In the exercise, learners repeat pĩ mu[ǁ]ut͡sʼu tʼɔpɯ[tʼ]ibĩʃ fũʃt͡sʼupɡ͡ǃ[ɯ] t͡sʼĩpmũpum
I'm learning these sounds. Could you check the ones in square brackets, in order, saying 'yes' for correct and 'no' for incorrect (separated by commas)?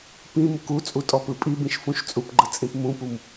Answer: no, no, yes